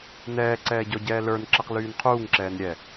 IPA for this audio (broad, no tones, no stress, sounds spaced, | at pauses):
n ɛː ǀ ɛː ɟ ɔ ɟ ɛː l ə˞ n ǁ ɛ q l yː n qʰ uː ŋ ǁ ɛː n ɾʲ ɛ